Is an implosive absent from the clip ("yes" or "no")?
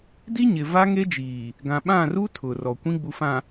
no